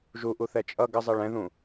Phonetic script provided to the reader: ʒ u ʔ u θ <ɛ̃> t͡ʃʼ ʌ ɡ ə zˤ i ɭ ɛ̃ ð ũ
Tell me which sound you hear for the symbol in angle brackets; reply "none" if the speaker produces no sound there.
ɛ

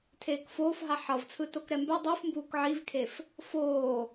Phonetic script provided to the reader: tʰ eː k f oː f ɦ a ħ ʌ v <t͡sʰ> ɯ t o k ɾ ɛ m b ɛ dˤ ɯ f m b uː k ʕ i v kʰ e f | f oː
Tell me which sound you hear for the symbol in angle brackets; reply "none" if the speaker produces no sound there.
t͡sʰ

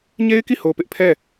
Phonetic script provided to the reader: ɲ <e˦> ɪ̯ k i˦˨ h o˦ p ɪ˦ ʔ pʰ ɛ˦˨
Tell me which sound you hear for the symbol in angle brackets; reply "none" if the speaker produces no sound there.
e˦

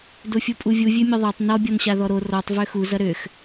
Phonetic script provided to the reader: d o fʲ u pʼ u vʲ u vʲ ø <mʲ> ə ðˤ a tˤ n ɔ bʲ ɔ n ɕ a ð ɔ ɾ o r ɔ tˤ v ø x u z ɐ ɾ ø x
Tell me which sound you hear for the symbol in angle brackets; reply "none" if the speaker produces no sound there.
mʲ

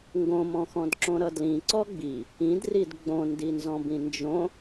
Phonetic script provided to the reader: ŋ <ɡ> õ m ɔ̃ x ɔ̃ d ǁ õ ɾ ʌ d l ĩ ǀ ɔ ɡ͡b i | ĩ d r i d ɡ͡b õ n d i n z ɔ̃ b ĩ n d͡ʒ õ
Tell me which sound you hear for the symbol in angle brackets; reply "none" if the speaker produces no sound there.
ɡ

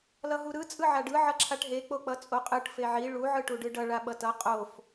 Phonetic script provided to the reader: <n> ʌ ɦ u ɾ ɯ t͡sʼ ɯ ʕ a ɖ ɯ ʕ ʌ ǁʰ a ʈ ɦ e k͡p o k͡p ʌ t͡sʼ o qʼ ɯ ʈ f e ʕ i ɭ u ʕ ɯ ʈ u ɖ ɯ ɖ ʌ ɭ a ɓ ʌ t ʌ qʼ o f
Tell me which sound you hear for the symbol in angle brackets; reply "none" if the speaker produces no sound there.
l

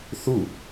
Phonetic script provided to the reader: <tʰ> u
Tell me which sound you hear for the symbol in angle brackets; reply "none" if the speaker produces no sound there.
θ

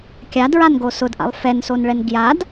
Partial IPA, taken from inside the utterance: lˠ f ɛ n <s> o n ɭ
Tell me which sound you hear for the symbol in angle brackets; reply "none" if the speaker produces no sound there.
s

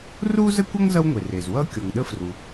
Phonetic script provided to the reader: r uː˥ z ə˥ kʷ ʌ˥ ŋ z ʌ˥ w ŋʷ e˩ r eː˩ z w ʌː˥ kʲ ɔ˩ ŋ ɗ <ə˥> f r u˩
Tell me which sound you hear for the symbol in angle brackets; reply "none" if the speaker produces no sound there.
ə˥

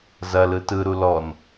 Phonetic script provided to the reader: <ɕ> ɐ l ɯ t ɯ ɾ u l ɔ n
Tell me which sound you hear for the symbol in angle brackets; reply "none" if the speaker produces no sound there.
z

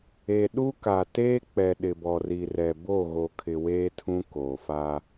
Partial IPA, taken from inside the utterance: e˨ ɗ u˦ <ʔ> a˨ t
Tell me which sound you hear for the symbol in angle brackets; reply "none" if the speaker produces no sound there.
k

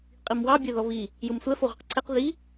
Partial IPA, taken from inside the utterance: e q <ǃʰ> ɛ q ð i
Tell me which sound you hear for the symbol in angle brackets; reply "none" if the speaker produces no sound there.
ǀʰ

